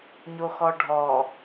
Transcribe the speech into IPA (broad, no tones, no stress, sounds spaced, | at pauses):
ɲ o x ɔ ɖʱ ɔ